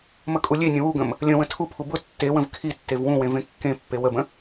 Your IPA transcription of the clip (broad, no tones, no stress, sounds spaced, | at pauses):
m ə kʼ u lʲ e nʲ ə̃ w u ɡ ə̃ m | lʲ ə̃ w ə̃ tʰ u pʰ u b ʊ tː e w ə̃ v kʰ i tː e v w ũ w ẽ v ẽ kː ẽ pː e w ə b ə̃